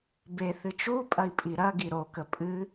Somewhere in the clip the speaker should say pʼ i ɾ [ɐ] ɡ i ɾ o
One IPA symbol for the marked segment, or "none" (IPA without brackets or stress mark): ɐ